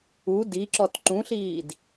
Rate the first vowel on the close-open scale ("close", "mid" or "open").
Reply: close